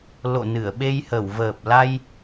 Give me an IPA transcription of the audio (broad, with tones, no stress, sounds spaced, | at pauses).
l o̰˧˨ n ɨ˧˩ ə̯ ɓ e˧ j h ə˧˩ w v əː˨˩ p̚ l a˧ j